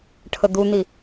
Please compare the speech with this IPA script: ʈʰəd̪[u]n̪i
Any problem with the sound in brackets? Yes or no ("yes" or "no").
no